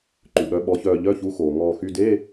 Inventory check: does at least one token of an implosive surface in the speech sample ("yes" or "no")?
yes